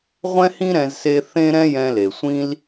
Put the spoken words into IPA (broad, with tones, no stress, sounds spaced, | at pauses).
ʁʷ ɛ̃˦ h ĩ˦ ɾ ɛ̃˧ z s e˧ θ ẽ˦ ɾ ɛ̃˦ j ɛ̃˧ l e˨ sʷ ĩ˦ l